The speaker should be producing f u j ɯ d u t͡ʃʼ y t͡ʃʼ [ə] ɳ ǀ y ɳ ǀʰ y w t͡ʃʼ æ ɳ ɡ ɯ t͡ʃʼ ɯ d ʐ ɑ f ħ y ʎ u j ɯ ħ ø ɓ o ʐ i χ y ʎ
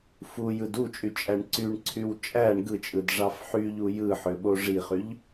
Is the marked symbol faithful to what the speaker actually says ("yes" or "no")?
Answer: no